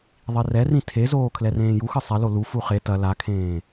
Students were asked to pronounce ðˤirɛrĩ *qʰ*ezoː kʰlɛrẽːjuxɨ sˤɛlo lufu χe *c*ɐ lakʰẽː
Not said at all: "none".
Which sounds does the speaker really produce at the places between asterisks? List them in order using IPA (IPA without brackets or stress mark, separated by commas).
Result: tʰ, t